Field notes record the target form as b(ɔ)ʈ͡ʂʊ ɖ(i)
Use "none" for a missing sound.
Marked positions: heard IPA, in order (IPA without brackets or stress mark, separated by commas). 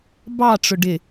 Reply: ɑ, ɪ